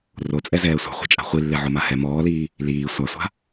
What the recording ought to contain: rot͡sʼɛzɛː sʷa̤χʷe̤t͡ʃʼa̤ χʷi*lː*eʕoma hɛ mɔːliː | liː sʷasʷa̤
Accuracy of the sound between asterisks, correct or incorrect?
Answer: correct